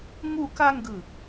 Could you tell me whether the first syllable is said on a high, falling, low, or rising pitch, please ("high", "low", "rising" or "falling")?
falling